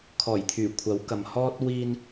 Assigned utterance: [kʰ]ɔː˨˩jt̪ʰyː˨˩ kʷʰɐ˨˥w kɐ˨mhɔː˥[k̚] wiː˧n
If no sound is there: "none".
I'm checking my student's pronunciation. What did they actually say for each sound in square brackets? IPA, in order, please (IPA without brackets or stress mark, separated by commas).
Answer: kʰ, t̚